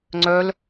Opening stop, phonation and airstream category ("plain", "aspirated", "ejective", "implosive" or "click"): click